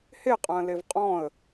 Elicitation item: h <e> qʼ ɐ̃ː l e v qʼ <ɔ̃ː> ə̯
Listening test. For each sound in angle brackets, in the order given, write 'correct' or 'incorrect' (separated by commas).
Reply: correct, correct